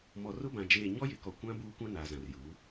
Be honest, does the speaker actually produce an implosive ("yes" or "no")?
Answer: no